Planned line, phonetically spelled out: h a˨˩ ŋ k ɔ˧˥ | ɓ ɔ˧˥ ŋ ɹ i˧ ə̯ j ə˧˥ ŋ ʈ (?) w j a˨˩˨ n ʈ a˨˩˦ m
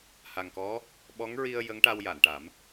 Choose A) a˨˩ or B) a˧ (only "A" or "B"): B